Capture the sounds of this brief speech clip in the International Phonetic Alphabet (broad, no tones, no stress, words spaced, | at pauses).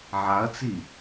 ʕaɐ̯t͡si